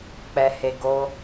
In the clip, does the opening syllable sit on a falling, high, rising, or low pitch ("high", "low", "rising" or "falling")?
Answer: low